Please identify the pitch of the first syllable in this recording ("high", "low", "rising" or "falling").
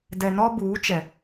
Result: low